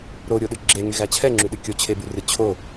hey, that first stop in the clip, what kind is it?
implosive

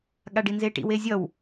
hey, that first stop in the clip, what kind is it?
implosive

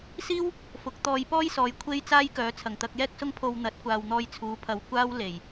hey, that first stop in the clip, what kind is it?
plain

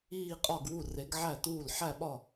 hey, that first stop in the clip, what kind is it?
ejective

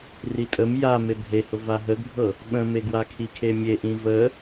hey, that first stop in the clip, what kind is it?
ejective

